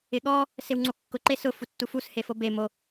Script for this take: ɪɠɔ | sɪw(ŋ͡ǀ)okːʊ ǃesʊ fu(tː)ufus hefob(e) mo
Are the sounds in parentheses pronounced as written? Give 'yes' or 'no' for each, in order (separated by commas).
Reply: yes, yes, yes